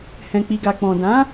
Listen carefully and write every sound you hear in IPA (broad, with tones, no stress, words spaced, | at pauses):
hɛ̃˧k͡pi˧ɡa˧ k͡pɔ̃˨dã˨˦